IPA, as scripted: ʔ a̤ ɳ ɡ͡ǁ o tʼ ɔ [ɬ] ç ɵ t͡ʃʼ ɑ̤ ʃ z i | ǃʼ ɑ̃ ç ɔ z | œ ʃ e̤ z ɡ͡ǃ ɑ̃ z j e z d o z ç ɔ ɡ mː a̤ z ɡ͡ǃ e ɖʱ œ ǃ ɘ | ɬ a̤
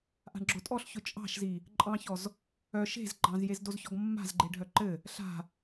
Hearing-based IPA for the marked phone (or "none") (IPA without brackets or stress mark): ɬ